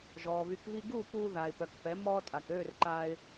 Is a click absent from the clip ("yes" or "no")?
no